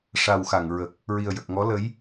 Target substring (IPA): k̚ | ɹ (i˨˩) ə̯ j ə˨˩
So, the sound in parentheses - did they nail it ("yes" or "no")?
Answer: yes